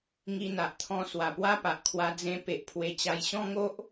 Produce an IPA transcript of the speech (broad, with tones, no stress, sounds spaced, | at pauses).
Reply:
ŋ i˧ n̪ a˨ ʔ t̪ʰ ɔ̃˧ s w a˨˩ p w a˦ p a˨ ʔ kʰ w a˧ d͡z ẽ˧ p e˨ ʔ pʰ w e˧ t͡ɕ a˧ j ɕ ɔ̃˦ ŋ o˦ ʔ